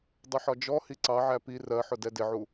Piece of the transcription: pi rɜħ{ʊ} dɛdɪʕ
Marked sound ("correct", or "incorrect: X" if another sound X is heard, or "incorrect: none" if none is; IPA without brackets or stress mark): correct